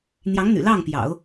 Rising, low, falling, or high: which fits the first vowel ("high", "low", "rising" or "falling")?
rising